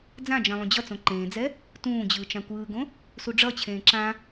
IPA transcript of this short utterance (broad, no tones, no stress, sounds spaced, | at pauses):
d͡z ã d͡ʒ ɛ̃ lˠ ũ d͡ʑ ʌ t͡s õ ǃ ẽː d͡z ɛ | t ũː d͡ʑ ɯː t͡ʃ ã kʷ ɯː ɡ õ | s u ɖ͡ʐ ʌ t͡ɕʰ ẽː ǁ ã